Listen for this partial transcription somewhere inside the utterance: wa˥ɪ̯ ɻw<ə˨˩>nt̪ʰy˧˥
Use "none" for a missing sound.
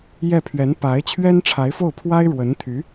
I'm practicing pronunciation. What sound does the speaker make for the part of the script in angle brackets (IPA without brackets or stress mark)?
ə˧˥